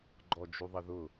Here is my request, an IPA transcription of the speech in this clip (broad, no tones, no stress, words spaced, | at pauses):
ɡ͡ǃɔd͡ʒuðˤəðʊ